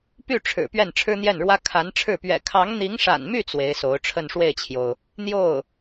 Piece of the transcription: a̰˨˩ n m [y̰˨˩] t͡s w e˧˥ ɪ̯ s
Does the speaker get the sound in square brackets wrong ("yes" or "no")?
yes